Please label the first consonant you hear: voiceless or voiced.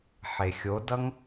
voiceless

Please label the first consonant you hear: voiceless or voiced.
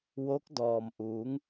voiced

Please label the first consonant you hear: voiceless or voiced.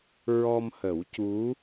voiced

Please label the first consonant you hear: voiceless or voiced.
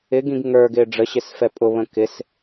voiced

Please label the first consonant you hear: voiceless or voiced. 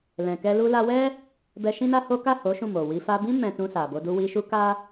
voiced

